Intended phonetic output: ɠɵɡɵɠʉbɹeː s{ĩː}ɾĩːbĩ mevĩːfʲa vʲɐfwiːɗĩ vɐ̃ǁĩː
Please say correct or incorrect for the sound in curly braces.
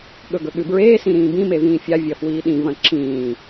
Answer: incorrect